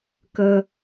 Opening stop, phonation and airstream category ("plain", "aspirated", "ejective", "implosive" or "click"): plain